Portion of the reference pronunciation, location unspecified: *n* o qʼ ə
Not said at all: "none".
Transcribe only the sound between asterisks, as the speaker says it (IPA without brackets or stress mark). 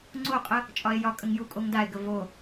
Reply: ŋ͡ǀ